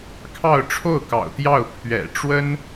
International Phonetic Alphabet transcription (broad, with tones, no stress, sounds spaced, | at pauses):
kʰ ɑ˥˧ ʊ̯ ʈ͡ʂʰ o˥˩ ʊ̯ k ɑ̰˨˩ ʊ̯ t̪ j ɑ˥˩ ʊ̯ pʰ ɥ ɛ̰˨˩ ʈ͡ʂ w ə˥ n